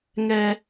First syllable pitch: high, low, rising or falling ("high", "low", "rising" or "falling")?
high